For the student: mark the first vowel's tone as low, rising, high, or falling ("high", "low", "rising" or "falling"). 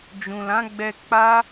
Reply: low